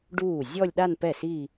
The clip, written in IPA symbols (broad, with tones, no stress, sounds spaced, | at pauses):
ɖ uː˥˩ zʲ ɔ˥˧ lʲ ɗ a˥˧ n p ɛ˥˩ s i˥˧